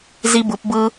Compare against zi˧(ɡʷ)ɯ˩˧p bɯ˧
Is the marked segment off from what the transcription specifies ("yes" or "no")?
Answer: yes